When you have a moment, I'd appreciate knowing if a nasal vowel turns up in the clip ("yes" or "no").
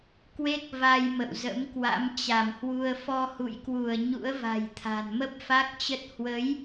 no